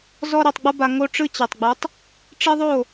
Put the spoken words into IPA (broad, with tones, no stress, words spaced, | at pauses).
zɔ˦ɾe˧tˤɡ͡bɤ˦ba˧ ŋo˦ʈ͡ʂɯ˦t͡ɕe˨tˤɡ͡bɯ˨˦tˤ | ʈ͡ʂe˦ðˤo˦˨